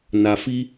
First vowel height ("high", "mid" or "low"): low